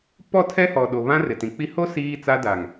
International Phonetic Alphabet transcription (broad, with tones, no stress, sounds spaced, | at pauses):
p ɔ˦˨ tʰ ɛ˦ h ɔ˨ ɗ o˨ β ã˦ r ɪ˨ t ĩ˨ k͡p i˦ h o˦ s iː˦ t͡s a˦ d a˨ ŋ